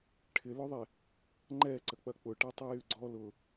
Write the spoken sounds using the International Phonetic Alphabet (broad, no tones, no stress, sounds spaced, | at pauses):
ʈʰ ɪ l ʊ ðˤ e | ŋ͡ǃ ɛ ǀ ə k͡p ɐ k͡p ʊ ʈ ɛ tˤ y j y ɡ͡ǀ ɔ l ʊ